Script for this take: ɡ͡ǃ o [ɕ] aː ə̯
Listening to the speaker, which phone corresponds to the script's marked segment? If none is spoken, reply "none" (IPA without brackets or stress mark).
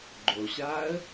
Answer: ɕ